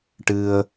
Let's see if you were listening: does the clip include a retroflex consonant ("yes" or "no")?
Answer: yes